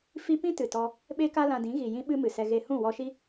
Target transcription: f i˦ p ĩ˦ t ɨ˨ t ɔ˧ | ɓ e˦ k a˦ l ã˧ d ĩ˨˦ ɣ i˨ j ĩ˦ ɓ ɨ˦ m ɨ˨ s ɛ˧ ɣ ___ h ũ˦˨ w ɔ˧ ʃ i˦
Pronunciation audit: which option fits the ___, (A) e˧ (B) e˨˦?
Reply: A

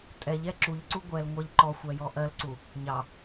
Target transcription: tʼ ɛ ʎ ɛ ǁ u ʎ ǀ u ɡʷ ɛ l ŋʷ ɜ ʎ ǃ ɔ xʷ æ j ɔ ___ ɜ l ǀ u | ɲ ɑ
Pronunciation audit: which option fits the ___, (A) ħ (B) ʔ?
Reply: B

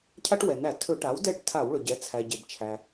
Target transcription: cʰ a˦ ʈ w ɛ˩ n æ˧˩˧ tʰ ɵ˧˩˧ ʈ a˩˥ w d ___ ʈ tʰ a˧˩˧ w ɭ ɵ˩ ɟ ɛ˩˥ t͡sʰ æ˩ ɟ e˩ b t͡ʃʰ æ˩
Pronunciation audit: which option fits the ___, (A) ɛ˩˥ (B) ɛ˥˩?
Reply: B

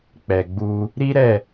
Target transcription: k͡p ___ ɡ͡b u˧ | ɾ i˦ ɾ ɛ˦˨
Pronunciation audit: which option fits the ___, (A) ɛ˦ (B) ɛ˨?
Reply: B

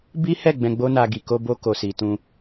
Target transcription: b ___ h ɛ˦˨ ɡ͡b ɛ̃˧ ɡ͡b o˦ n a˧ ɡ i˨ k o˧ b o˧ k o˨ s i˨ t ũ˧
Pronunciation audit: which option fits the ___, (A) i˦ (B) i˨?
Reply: A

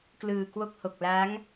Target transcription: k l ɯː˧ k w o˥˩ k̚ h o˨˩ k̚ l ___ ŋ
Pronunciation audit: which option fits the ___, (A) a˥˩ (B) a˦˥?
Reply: B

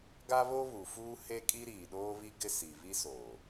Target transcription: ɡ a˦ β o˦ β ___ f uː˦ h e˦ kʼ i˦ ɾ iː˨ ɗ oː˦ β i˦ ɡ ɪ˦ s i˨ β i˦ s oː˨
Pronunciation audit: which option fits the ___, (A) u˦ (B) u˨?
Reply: B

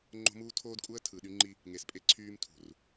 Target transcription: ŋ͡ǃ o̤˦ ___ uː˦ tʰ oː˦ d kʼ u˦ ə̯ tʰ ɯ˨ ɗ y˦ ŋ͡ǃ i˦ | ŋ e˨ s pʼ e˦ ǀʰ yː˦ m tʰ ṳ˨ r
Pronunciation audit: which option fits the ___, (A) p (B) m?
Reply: B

